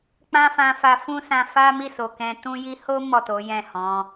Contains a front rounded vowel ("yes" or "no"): no